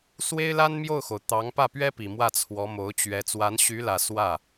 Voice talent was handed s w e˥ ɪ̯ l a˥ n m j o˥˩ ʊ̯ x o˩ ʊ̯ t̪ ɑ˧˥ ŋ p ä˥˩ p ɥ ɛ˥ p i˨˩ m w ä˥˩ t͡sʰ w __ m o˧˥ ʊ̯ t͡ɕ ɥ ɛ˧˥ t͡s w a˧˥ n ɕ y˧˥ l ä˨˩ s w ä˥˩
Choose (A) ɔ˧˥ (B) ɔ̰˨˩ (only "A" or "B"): A